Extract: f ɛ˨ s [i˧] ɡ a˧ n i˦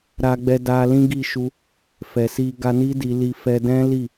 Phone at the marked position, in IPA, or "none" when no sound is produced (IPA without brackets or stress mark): i˧